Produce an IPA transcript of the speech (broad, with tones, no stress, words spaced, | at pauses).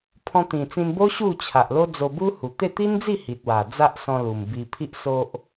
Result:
pʰɔ̃˧t̪ĩ˨˩ t͡sĩ˧nbo˦ ɕu˥˧t͡ɕʰa˨ʔ lo˦d͡zo˧ bu˦hu˨˩ t̪e˥˧ t̪i˦nd͡zi˥˧ hi˨t̚wa˨˩ d͡za˦ʔsɔ̃˧lu˨˩m bi˧pʰi˦ʔso˦ʔ